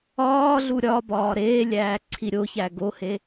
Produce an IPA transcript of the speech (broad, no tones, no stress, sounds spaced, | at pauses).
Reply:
ɒː ɮ u ɾʲ ɒ b ɒː ɾ eː lʲ æː ǀʰ i ɾʲ o ç æ ɡ o h e